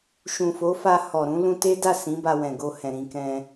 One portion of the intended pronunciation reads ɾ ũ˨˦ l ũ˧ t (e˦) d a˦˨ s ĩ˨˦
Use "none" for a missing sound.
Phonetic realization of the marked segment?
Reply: e˦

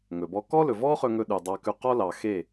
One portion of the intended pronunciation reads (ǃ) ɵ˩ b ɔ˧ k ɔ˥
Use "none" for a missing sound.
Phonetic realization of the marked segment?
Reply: ŋ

